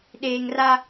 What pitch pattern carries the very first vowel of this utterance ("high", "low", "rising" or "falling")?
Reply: low